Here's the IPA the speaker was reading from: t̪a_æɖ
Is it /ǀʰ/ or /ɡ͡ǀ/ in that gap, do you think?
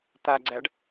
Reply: ɡ͡ǀ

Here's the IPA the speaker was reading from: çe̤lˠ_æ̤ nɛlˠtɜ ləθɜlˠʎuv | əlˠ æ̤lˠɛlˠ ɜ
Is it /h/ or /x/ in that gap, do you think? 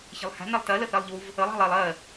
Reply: h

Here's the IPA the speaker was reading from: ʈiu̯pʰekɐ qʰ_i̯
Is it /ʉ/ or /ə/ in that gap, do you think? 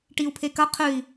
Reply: ʉ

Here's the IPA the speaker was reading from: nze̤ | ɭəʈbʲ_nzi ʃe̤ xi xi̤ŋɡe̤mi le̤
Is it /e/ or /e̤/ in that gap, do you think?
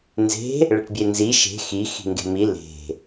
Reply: e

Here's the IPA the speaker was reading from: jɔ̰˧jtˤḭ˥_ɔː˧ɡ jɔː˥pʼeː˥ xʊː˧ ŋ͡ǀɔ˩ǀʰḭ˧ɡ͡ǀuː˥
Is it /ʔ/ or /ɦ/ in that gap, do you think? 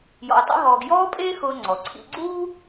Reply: ɦ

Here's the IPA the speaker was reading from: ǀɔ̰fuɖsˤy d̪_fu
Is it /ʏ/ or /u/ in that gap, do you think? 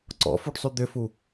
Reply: ʏ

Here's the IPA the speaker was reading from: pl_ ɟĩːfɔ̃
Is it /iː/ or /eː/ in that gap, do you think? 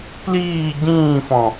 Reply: iː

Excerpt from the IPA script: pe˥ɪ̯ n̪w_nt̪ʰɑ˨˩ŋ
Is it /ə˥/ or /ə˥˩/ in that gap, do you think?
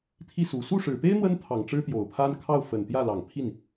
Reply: ə˥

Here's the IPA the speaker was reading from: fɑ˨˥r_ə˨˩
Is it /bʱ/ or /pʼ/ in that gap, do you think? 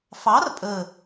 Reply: pʼ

